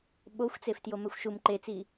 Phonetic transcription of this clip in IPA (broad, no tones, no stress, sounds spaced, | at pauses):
ɓ o xʷ t͡s e f t j o m ɛ xʷ ʃ u m ǃ e t͡s i